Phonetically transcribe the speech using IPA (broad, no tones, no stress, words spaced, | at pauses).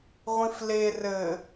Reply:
ʁʷĩfle rɘ